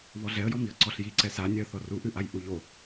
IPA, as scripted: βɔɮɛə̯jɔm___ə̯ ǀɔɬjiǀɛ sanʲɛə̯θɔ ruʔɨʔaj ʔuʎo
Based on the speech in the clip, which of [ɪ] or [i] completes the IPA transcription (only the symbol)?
i